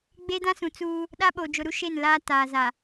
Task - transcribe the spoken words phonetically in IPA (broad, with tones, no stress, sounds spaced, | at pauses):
ɡ͡b e˦ d ã˦ s ũ˨ t͡s uː˦ | ɗ a˦ ɓ o˨ d͡ʒ ʊ˨ ɾ u˦ ʃ e˦˨ n l aː˦ t aː˨ z a˨